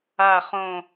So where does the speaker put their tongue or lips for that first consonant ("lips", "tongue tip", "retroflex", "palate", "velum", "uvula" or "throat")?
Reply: uvula